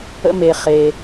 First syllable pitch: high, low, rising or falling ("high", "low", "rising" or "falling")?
high